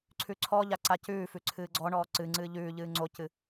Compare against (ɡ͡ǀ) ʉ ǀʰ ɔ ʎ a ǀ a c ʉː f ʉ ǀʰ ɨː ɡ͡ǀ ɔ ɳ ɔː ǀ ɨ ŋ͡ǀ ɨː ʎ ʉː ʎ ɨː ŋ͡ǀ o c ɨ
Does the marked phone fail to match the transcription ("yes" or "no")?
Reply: yes